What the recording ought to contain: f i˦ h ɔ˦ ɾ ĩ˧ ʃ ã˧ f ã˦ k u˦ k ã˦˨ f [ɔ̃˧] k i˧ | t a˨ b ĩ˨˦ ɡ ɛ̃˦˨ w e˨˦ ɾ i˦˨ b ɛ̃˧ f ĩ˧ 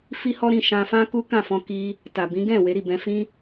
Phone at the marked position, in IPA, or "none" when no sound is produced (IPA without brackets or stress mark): ɔ̃˧